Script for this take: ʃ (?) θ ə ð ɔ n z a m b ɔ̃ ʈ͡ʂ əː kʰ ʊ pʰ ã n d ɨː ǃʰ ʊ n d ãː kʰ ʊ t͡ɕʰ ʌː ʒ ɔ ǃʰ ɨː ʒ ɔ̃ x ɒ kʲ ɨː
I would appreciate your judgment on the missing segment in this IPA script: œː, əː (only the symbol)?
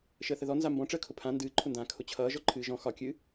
əː